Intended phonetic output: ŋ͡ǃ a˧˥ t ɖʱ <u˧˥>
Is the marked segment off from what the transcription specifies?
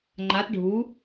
no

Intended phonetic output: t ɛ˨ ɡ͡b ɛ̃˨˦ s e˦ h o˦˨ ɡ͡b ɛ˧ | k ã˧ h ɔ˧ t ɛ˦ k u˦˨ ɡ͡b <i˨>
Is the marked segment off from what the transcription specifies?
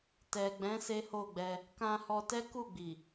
no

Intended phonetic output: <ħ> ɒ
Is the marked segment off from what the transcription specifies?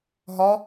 yes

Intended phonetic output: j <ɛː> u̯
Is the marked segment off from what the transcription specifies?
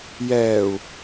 no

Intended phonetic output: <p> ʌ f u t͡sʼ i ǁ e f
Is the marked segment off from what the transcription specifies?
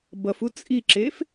yes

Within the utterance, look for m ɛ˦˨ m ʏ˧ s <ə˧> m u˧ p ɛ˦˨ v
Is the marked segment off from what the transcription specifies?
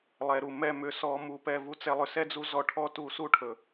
yes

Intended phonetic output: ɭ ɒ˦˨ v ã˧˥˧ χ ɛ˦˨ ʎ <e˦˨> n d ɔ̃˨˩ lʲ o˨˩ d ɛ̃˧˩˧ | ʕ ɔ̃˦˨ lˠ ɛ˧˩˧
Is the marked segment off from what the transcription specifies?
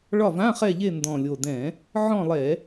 no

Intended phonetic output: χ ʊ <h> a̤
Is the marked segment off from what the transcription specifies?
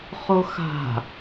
yes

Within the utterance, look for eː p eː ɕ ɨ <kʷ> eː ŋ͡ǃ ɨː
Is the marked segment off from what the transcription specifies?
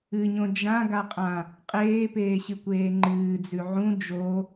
no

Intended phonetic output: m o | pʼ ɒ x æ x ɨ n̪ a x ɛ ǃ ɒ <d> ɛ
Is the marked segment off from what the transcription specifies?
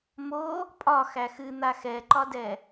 no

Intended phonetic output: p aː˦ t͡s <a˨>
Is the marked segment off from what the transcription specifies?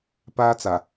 no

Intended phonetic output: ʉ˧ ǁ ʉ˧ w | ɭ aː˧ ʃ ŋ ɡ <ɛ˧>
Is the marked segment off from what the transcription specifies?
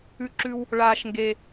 yes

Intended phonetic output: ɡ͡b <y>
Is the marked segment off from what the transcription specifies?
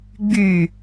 no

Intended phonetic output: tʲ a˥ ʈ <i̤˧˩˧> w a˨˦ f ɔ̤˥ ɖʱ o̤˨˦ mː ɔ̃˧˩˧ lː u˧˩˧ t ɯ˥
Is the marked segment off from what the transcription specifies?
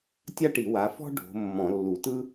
yes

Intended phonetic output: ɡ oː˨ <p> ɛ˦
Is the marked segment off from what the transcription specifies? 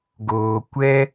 yes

